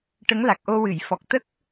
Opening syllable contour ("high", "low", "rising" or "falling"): rising